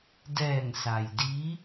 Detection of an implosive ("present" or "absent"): absent